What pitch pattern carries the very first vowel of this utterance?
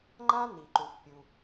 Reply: high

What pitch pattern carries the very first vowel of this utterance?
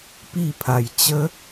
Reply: falling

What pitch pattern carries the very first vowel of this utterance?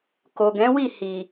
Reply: low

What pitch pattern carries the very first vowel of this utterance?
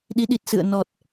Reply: rising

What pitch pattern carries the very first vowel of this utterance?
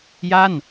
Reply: falling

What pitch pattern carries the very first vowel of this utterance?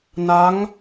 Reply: rising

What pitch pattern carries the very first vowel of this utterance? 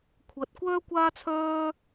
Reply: low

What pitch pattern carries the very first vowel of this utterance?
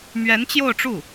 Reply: rising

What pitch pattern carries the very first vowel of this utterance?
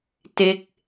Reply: falling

